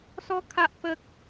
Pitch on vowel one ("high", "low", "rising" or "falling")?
high